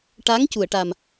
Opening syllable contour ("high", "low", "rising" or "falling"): rising